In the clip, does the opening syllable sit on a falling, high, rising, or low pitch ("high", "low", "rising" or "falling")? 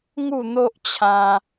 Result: falling